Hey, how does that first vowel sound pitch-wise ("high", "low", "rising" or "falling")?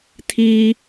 high